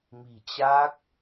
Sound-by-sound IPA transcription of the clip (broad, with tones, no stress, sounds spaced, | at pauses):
m i̤˨˩ t͡ɕ a˦˥ k̚